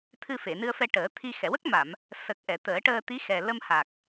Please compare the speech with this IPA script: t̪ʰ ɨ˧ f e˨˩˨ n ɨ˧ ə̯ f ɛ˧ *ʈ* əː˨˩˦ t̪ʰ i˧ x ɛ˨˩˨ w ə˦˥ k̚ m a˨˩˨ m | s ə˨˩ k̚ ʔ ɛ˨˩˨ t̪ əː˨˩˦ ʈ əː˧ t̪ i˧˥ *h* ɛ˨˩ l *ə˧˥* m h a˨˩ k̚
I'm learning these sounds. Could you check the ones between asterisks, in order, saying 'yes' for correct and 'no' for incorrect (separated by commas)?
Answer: yes, no, no